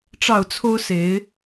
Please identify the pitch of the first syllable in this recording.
falling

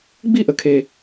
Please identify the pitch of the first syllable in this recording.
falling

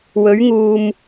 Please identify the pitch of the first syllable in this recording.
rising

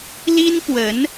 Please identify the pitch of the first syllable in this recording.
high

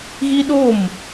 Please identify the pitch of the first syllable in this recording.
high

